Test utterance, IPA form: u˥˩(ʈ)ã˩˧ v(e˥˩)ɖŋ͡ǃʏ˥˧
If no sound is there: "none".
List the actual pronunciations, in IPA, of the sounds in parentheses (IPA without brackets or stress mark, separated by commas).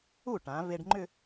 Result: ʈ, e˧